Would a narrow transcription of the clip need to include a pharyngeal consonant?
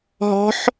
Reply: yes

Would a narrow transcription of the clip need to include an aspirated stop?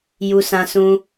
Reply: no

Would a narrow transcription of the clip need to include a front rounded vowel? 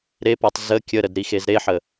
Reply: no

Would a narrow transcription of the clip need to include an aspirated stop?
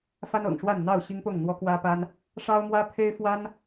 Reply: yes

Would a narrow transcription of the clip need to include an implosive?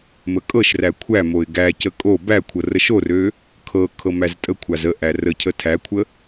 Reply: no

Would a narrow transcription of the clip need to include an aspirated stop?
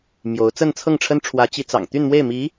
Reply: yes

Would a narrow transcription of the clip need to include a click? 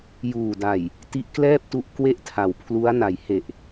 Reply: no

